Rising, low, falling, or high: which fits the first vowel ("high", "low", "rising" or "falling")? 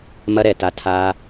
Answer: high